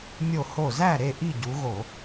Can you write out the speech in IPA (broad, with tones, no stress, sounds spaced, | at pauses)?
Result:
mʲ o˧˩ h o˧˩ z æ˥˨ ɾ e˥˨ ʔ i˥˨ ɟ u˨˦ ɣ o˧˩˧